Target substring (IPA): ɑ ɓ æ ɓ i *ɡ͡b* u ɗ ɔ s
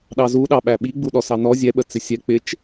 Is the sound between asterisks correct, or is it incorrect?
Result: correct